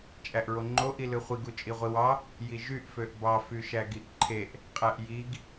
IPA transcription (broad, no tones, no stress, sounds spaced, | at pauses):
t͡ʃʼ æ ʔ ɹ o ŋ͡ǃ o ʔ i l ɯ χʷ i ɡ u t͡ʃʼ i ʁʷ i w ɑ | j i ʒ y ʔ f ø ʔ b ɑ f y ʃ æ ɡ i ʔ ǃʰ e ʔ | qʼ æ ʔ j i ɡ